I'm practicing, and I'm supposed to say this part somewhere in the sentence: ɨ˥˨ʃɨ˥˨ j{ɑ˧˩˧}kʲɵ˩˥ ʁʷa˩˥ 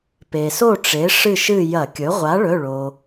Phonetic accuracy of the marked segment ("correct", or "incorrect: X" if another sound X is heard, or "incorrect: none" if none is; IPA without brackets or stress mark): incorrect: ɐ˧˩˧